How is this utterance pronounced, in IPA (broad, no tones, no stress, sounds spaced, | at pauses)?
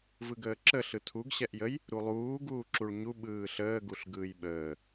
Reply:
v ɯ ɡ əː ǁ ə ɬ ɯ tʰ u ɡ ɕ ɛ ʔ j ə j | ɾ u lˠ uː ɡ uː ǁ u ɭ ɲ u ɓ ɯː ɬ əː ɡ u ɬ ɡ ɯː j ɓ əː